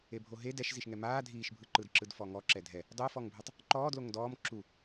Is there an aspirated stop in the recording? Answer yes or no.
no